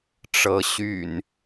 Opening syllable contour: rising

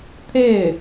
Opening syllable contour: falling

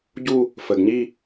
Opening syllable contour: falling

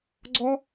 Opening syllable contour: high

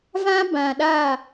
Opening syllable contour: high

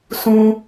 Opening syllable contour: high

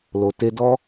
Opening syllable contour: low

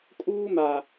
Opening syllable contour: high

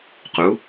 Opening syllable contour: rising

